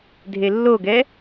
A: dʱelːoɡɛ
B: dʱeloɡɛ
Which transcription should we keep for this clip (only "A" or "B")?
A